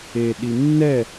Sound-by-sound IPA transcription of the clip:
eɗi nːɛ

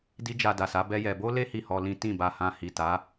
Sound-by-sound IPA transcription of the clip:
di˦ d͡ʒa˧da˨sa˨˦ bɛ˦jɛ˧ bo˦le˦ hi˦˨hɔ˧lĩ˦ tĩ˦˨ba˧hã˧ hi˨ta˨˦

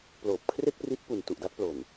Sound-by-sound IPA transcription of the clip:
ploː˨˩p̚kʰre˥˩k̚ pri˦˥t̚pu˨˩n tu˨˩ʔda˦˥t̚plo˨˩n

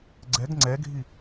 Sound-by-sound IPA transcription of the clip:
ɡ͡ǀɛɡ ŋ͡ǀɛɡʱi

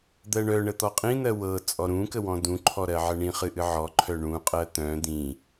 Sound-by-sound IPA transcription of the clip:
d̪ɜɳœɳə t̪ɔqʼĩn̪ɜ wɤ t͡sʼɔɾũkə wɔ̃dũǃʰɔ ɾɜʕəɳĩχɨ ʔɨʕɔǃʰœ ɳũqʼɜ t̪œ̃ d̪ĩ

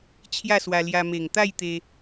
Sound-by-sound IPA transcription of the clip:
t͡ɕʰja˥˧swa˧lja˧ me˨˩ŋt̪a˥˧jt̪e˧

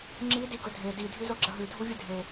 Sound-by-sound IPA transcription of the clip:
ŋ͡ǁi diɡɵdʱe di dʱʉzoɡ͡ǁɐɦʉ dʱuvʲɨdʱe

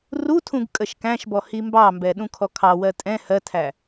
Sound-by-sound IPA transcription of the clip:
rutʰũɡ kʼəʃkæ̃ʃbɔ himbɑmbɛ ɗũkʰɔkʰɑwɜ tʼɛ̃ hɜtʰæ

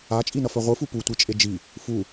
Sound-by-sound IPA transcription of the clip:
at͡ʃʼinʌ fœʁʷɯ fuputʷi t͡ʃʼed͡ʒi | fu

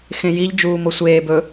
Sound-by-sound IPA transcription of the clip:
xẽjiʎ d͡ʒuːmosʷeː bɵ

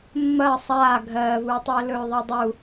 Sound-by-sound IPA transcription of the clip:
mːɐː sˤaː ɡʱɜːvuːtˤɵː lɵːðˤɜdˤu

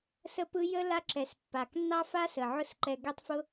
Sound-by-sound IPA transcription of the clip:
sə˦pɯ˦ jə˦ la˦ǁɛ˨s pːa˨k nːɑ˦fa˦sə˨ ʕʊ˦sǃɛ˧ ɡɛ˦tˤfʊ˦

